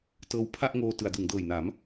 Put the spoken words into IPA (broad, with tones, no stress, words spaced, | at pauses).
tɤː˧wpʰa˥˩ʔŋoː˧ tɯ˩˦a̯dɯ˩˦ŋdɤː˨˩jna˩˦m